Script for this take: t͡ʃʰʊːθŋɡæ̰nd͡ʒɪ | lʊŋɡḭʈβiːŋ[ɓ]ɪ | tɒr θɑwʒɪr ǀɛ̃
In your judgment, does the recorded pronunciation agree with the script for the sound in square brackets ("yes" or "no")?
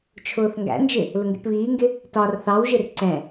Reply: no